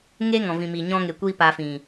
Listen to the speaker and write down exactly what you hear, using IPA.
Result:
ŋe˦ ŋɔ̃˨vĩ˨mi˨ ɲɔ̃˧ŋe˨kʷi˧ pa˧fĩ˨

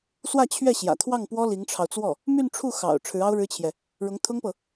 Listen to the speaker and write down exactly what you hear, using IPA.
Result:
swä˥˧t͡ɕʰɥɛ˥˩ɕjä̰˨˩ t̪ʰwɑ˥˩ŋpwɔ˥ li˧˥ŋʈ͡ʂʰɑ˧ʊ̯ t͡swɔ˥˩ | my˥˧nʈ͡ʂʰu˥˩ xɑ̰˨˩ʊ̯ ʈ͡ʂʰɻ̩˧˥ɑ˥ʊ̯ɻɻ̩˥t͡ɕʰjɛ˨ | ɻʊ˧˥ŋt̪ʰʊ˥ŋpɤ˨

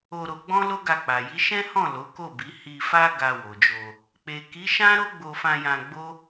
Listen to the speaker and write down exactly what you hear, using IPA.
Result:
o˧ɾo˧ɡ͡bɔ̃˦ lo˦ɡa˧k͡pa˨ ji˨˦ʃɛ̃˦hɔ̃˦˨ lo˨˦ko˦˨bi˨˦ hi˧fa˦ ɡa˧wo˨d͡ʒo˧ | k͡pe˨ki˨˦ʃã˦ ɾo˦ɡ͡bo˧fã˧jã˧ ɡ͡bo˦

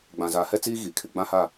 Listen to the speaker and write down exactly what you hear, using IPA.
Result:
ɡ͡bã˨zaː˨ hɛ˦t͡siː˦ ɣiː˨kʰɪ˨ ɡ͡bã˦ha˦˨

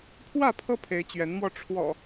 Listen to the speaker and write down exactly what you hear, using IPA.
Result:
pʰwä˥˨pʰɤ˦pʰe˨˦ɪ̯ t͡ɕɥɛ˨˦nmwɔ˧ ʈ͡ʂʰwɔ̰˨˩

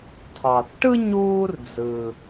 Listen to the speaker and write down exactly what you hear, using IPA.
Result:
tʰɑ˩θʈɯ˥ ɲuː˦rd͡zɯ˩

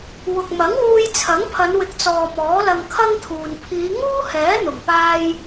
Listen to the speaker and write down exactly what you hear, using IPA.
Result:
wʊ˨k̚mɐ˨˥ŋwuː˧j t͡sʰɐ˨˥ŋpʰɐ˨˧nwɪ˨˥k̚t͡sɔː˨ mɔː˨˥lɐ˧ŋkʰɐ˥ŋt̪ʰuː˨n pʰiː˨˧ŋuː˥hɛː˨˥ n̪ʊ˨˩ŋpaː˧j

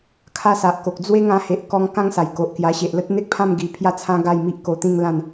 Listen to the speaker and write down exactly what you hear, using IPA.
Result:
kʰa˦sa˨ʔko˨k̚ d͡zwe˦ ŋã˧he˨ʔkɔ˧ŋ kã˦ŋsa˨˩j ko˨ʔkja˧ ɕe˨ʔlə˦t̚n̪e˦k̚pʰã˥˧m ɡi˧ pʰja˥˧t͡sʰã˦ ɡa˥˧jmi˦ʔ ko˧t̪ĩ˥˧ŋlã˥˧n

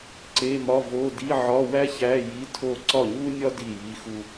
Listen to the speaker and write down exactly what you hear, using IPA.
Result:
ǀe˧˥˧mɒ˧˥˧vo˧˥˧ di˧˥˧ʕɒ˧˥˧wæ˥çæ˧˥˧ ji˧˥˧tʰo˥˩ ǀɒ˥˩ɲu˥nʲɒ˥ di˥˩ji˧˥˧ xu˧

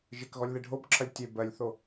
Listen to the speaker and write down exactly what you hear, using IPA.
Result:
ʒɪkɣɔlʲ ðeɖʱobǁʰɐlʲ tʲe bɜlʲθo

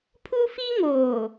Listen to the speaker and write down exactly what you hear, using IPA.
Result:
pʰu˦fi˦ŋoː˨

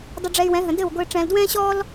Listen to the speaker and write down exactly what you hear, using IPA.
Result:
dˤʊ˧ɖ͡ʐɛ˧y̯wɛ̃˨˦ɦə̃˨ dɘ˦˨wɡʷɘː˧ ʈ͡ʂɛ̃ː˨ldwɛ̃ː˦ɕɔː˦l

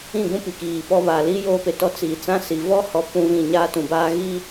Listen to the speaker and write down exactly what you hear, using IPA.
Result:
ĩ˦˨ɡũ˦ pi˨kiː˨pɔ˦ βa˨li˦ joː˦pe˨tɔ˦ t͡si˨ t͡sã˦si˨ vɔ˦ hɔ˦pũ˦vĩ˦˨ ɲaː˦tũ˨baː˦ ɣi˦

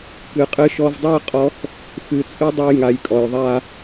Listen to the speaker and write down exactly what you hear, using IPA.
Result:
kɨ˨qʼɨ˧ʃɔ˧vdˤi˦ə̯ qʼɔ˦x | xɨ˨t͡sʼɨ˦dˤu˧jŋa˨j kʼɔ˨jðˤa˦

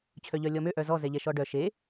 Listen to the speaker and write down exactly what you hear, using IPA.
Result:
t͡ɕʰœʎœlʲɔmø ʔœzɔ zɛʎɛʃɔɖœ ʃe

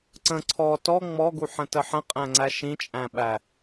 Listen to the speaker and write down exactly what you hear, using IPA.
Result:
ǀə̃ ǀʰɔ tɔ ŋ͡mɔɡuħə̃tə ħə̃qʼæ̃ŋ͡ǀæ ʃĩt͡ʃʼæ̃ɓæ

